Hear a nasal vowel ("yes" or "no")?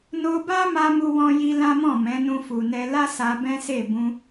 yes